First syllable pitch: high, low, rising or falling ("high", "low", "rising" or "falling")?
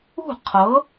falling